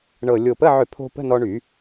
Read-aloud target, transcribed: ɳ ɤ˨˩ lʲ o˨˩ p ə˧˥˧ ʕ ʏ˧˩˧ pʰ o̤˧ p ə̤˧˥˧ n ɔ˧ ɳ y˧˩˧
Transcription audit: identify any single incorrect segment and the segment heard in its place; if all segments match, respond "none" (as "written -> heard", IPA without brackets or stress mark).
none